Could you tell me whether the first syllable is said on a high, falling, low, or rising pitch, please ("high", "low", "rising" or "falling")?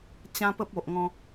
high